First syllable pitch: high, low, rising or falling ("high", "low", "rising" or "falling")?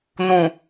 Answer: low